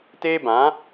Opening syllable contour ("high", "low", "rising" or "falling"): high